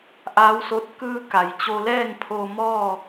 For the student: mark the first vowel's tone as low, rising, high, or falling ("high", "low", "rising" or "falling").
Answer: rising